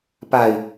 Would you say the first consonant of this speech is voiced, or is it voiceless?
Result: voiceless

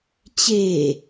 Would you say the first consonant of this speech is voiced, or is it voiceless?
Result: voiceless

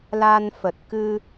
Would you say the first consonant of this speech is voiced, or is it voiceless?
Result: voiced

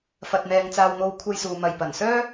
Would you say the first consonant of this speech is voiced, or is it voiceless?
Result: voiceless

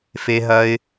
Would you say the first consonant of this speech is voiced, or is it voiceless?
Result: voiceless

